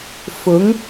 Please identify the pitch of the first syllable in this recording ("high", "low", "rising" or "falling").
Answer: rising